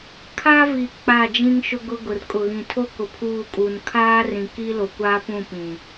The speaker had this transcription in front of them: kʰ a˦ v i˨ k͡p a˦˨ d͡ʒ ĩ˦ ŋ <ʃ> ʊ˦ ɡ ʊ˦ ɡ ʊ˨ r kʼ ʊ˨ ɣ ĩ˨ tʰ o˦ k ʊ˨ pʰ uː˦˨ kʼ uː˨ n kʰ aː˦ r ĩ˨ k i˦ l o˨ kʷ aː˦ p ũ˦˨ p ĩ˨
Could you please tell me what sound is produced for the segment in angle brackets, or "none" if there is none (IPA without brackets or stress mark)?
ʃ